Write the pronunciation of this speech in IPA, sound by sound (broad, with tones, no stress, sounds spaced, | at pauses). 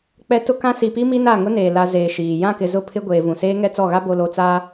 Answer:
k͡p ɛ˨ t ʊ˦ k ã˦ s i˨ p i˦ m i˦ n a˦˨ ŋ ʊ˦ n eː˨ l a˨ z eː˨ ʃ iː˨ j ã˦˨ k ɪ˨ z ʊ˦˨ pʰ ɪ˦ ɡʷ eː˨ v ũ˨ s eː˦ ŋ ɛ˦ t͡s ɔ˦˨ ɣ a˦ b o˨ l o˨ t͡s aː˦